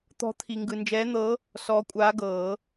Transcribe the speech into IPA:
t̪ ɔ̤˧˥ t̪ʰ i˨ ŋ ɡ ɯ˨ n d͡ʒ ɛː˧˥ n̪ ɤ˧˥ | s ɔː˧˥ kʷʼ aː˧˥ ɡ ɤː˨˩˦

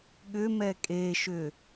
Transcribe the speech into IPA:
ɠ ʏ m ɛ kʼ e ʃ ʏ

